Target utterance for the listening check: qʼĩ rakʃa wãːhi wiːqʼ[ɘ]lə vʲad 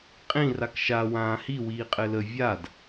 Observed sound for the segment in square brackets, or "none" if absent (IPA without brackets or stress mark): ɘ